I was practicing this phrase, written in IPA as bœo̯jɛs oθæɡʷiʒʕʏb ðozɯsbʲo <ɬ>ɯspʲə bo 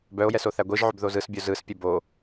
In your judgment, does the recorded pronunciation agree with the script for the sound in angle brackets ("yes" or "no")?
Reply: no